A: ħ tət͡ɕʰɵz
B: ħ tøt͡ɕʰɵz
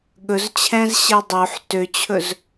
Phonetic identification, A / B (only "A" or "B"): B